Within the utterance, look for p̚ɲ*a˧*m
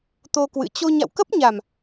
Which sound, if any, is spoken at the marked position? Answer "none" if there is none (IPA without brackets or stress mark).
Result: a˨˩